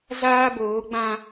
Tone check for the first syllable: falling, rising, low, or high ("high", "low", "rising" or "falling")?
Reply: high